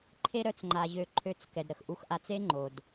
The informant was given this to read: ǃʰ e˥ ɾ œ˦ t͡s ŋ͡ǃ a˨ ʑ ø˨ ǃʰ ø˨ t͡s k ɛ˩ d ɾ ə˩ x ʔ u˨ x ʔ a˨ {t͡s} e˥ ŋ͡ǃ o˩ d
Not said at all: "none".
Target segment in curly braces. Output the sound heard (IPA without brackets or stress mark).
t͡s